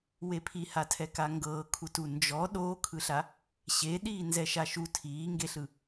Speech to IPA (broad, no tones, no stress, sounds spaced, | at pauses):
w e pʰ i h a tʰ ɛ k a ŋ ɡ ɤː kʰ u t u n d͡ʒ ɔ ɗ oː kʰ ɯ ɬ a | ɕ e ɗ iː n z ɛ ʃ a ʃ u tʰ iː ŋ ɡ e ɬ ɯ